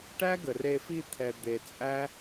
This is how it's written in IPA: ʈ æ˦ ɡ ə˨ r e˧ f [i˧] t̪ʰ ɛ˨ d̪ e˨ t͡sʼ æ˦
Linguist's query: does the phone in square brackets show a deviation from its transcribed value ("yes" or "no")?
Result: yes